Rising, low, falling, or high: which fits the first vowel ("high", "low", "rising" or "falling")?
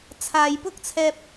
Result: low